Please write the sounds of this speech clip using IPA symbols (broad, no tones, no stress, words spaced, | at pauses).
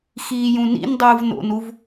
xiːjũnḭndˤɯːv no̰nuv